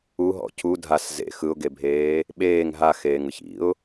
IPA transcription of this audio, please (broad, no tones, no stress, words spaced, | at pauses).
uɦɔ̰ cʰu dʱas zḛ xɯʊ̯ɡebʱeː | ɓeːŋ ɦaxeːŋɯç ḭʊ̯